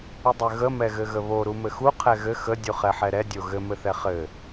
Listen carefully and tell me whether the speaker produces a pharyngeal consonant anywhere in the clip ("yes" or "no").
yes